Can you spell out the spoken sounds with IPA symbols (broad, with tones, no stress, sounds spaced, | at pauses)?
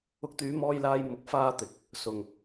ʊ˨˥ k̚ t̪ yː˨˧ m ɔː˧ j l aː˧ j m ʊ˨˥ k̚ f aː˧ t̪ ɪ˨ k̚ | s ʊ˨ ŋ